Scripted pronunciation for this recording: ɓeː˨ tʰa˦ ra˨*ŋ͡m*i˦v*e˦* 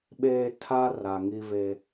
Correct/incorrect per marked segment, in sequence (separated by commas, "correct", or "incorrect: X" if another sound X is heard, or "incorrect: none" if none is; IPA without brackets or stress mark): incorrect: ŋ, correct